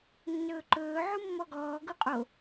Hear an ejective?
yes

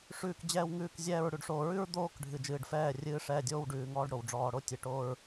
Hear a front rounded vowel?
no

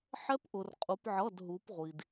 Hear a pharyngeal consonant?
yes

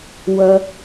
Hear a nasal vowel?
no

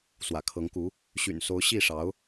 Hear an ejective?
no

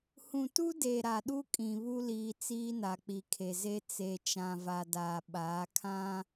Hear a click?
no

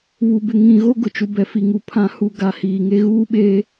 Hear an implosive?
yes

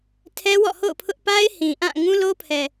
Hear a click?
no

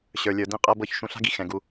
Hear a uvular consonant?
yes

